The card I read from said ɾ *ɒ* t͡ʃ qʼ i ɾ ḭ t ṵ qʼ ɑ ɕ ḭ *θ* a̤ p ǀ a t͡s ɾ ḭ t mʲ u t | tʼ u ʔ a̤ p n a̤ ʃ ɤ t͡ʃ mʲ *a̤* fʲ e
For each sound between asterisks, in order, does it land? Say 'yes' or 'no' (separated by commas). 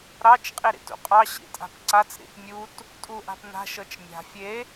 no, no, yes